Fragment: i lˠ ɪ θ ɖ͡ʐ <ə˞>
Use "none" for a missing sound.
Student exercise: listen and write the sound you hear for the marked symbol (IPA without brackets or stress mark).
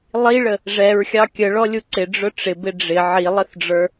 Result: ə˞